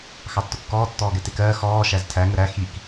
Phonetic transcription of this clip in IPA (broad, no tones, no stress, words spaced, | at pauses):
xɑtːʊkːɔː tːɔːɡɛtɪkɜː xɔː ʃæztʰæ ŋəɾæ xik